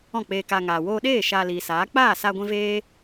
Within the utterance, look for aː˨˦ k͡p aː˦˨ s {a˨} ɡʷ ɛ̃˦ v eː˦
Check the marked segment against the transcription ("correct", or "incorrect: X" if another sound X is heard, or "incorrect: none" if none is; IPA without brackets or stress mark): incorrect: a˧